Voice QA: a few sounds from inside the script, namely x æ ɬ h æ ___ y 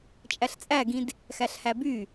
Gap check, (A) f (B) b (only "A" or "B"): B